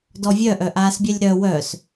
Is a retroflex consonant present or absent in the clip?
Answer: absent